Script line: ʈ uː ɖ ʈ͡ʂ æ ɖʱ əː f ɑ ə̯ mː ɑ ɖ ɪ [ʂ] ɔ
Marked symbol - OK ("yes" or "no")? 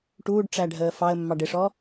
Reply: yes